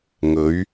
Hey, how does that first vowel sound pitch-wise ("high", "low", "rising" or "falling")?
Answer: rising